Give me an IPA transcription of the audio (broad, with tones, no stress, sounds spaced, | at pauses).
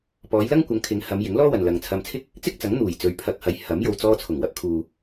p ɔː˨˧ j l ɐ˥ ŋ kʷ ɐ˨˧ ŋ kʰ ɪ˨˧ ŋ h ɐ˨˧ m j ɪ˨˥ ŋ l ɔː˥ w ɐ˨ n l ɐ˨ ŋ t͡sʰ ɐ˧ m t͡sʰ ɪ˥ k̚ | t͡s ɪ˥ k̚ t͡s ɐ˨˥ ŋ n̪ uː˨˩ j t͡s ɵ˨˧ ɥ pʰ ɐ˧ k̚ h ɐ˨˧ j h ɐ˨˥ m j o˨ w t͡s ɔː˧ t͡sʰ ʊ˨˩ ŋ w ɐ˧ p̚ kʰ uː˨